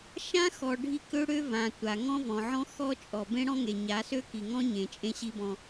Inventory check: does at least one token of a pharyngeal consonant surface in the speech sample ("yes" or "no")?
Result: yes